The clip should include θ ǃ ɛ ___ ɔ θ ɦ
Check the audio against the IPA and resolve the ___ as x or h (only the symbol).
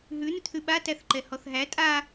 h